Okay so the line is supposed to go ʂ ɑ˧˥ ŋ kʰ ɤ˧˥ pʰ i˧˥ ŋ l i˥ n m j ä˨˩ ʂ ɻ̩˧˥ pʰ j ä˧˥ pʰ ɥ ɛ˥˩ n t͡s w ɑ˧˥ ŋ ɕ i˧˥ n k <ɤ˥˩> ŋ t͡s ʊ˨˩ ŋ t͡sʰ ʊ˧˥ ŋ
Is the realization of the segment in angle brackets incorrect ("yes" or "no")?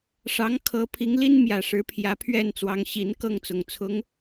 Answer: no